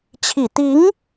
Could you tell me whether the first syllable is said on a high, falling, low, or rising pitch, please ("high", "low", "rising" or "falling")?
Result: low